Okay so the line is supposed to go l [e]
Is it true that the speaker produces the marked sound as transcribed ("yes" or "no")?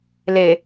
yes